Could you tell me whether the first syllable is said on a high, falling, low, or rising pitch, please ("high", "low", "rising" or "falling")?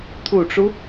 low